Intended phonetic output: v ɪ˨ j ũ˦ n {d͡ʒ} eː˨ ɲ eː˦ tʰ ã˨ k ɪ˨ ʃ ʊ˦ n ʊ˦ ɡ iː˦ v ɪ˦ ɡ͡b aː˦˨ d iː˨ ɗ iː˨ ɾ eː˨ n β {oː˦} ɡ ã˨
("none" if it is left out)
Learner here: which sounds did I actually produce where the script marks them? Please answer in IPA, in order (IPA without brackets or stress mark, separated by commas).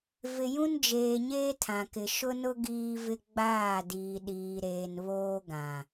d͡ʒ, oː˦